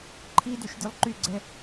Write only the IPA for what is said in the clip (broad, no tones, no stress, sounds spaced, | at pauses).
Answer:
ǃʰ i d y ʃ dʲ u lˠ ǃ y ɡ͡ǀ ɛ